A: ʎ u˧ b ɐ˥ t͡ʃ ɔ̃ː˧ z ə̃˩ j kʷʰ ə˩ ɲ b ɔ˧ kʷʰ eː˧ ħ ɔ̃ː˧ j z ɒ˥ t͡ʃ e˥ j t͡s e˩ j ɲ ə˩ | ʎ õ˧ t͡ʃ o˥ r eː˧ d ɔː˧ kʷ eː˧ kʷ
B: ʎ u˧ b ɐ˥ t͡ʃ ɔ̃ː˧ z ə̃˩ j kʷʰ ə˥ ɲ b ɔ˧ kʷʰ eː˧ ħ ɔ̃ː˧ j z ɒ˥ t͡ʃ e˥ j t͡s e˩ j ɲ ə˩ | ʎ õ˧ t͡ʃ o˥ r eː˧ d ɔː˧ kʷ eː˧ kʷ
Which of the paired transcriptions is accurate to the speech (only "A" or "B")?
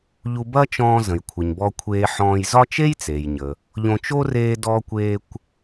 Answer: A